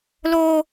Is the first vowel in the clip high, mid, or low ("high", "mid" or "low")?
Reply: mid